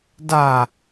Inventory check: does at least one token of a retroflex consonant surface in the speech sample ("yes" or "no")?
no